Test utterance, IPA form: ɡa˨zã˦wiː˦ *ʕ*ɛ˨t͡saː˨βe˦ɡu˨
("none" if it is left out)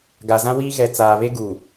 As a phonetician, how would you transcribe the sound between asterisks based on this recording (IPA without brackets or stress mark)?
ɣ